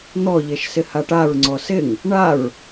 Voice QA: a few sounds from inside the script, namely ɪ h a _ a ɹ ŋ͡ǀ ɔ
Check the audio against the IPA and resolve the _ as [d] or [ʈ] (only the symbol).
ʈ